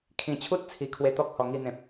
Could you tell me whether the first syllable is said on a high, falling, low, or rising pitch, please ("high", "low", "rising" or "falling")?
low